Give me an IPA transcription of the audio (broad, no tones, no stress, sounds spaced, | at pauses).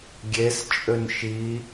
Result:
ɡʲ e s t͡ʃʼ ø n ʃ i